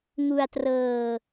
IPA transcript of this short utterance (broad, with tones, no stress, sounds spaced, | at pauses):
ŋ u˧ a̯ t r ɤː˧